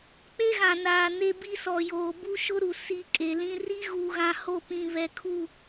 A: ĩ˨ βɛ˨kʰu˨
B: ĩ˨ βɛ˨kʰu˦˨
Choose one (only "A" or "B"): B